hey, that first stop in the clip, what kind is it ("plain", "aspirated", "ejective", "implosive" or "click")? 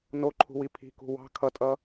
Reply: click